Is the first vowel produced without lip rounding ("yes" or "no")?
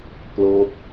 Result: no